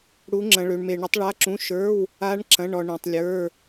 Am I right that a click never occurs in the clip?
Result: no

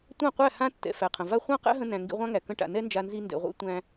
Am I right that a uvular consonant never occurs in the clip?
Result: no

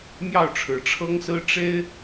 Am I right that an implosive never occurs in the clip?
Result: yes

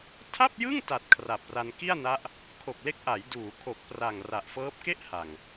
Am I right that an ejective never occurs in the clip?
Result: yes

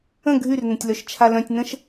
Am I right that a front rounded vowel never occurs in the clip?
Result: no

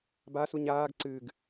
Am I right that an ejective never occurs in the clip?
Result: yes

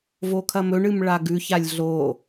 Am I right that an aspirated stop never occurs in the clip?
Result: no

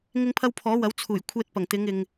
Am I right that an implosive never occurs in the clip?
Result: yes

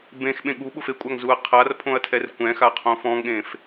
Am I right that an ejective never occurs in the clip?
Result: no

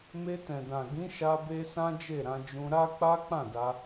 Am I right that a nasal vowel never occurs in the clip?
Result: no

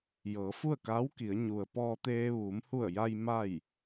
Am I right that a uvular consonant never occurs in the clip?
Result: yes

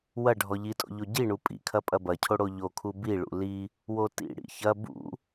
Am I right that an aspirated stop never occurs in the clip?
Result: no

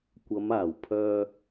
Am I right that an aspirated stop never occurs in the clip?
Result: no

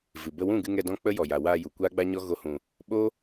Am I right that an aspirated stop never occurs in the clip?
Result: yes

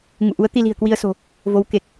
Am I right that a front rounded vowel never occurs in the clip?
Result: yes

